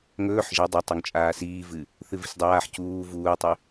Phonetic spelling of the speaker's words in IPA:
ŋ ɵː ħ ʒ ɐ dˤ ɐ tˤ o ŋ t͡ʃʼ aː s iː v ɨ | θ ɨ v i̤ s dˤ aː ħ c uː v uː tˤ ʉ

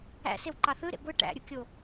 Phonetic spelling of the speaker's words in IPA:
æ̰ s e w ǃ ɑ θ ɯ ɾ ḛ ɡʷ ɯ ʈ æ̰ ɾʲ u kʲ o

